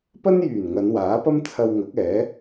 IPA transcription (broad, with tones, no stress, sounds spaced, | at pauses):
p ɐ˥ n j yː˨˩ n ŋ ɐ˨˧ n w aː˨˥ p ɐ˥ m t͡sʰ ɐ˧ w ŋ ɐ˨˥ k̚ ɛː˨˥